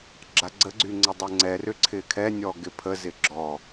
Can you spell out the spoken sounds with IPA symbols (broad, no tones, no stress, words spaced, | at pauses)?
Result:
ɡ͡ǁaɡ͡ǀəɡ͡ǀy ŋ͡ǀədˤɛŋ͡ǀɛrʏ ǀʰɪkʰɛnʲɔ ɡɪpʰəzɪ ɡ͡ǁɔ